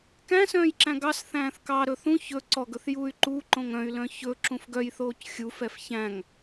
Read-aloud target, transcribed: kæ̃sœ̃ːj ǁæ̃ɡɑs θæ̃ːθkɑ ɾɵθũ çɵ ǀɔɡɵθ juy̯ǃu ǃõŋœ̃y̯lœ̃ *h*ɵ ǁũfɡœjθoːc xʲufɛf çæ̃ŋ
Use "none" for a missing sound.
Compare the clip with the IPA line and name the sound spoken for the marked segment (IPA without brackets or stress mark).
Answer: ç